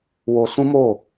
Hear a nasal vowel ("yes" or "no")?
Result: yes